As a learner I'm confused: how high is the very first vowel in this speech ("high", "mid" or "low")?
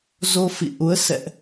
mid